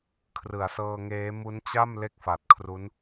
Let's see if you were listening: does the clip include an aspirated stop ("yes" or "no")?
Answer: yes